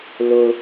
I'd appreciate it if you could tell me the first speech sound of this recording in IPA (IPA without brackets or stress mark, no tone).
l